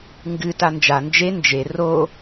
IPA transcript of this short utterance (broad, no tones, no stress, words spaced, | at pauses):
ŋɡɨta nd͡ʒa nd͡ʒe nd͡ʒe ro